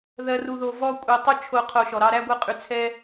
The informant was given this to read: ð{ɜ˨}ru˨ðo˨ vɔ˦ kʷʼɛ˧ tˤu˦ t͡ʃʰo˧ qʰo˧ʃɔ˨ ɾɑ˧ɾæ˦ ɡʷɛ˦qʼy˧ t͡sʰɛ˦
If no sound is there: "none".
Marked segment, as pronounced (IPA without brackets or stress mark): ɜ˨